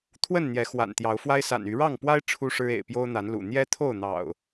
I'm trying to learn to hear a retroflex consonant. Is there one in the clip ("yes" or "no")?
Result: yes